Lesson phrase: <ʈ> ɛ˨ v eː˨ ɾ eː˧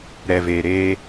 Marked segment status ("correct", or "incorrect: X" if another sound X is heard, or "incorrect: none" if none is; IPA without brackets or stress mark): incorrect: ɾ